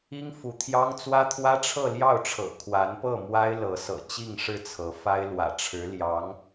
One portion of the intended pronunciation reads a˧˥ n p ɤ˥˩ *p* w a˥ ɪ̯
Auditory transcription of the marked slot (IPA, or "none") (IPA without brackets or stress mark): m